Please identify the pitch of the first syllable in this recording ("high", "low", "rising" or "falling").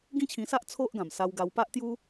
high